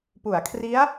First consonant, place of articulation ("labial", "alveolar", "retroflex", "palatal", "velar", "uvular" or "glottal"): labial